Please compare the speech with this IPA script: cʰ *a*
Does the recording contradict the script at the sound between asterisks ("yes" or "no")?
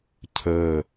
yes